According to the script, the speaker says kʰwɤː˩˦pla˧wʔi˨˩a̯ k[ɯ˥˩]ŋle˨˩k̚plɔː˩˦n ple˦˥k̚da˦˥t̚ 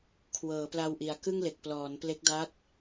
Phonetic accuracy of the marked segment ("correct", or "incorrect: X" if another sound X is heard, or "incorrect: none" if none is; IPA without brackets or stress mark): correct